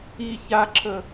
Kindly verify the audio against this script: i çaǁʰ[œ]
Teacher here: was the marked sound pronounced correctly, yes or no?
no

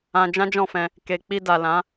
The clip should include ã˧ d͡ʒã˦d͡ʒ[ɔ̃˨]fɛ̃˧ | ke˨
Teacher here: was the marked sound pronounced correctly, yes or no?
no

